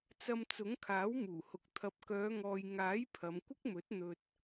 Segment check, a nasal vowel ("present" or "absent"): absent